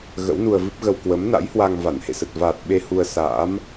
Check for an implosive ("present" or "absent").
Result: present